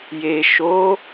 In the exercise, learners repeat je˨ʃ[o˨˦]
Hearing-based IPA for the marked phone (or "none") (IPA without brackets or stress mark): o˨˦